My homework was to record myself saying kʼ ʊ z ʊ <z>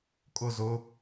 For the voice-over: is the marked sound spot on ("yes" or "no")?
no